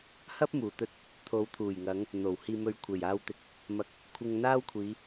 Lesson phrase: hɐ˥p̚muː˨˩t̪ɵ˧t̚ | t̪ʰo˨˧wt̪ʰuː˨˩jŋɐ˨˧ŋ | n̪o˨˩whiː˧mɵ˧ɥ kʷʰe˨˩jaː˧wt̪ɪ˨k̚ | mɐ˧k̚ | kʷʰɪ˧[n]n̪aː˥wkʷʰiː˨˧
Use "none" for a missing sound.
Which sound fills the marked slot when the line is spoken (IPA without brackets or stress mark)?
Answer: ŋ